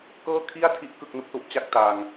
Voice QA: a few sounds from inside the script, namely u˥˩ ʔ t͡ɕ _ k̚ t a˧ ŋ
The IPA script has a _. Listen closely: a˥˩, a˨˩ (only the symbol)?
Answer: a˥˩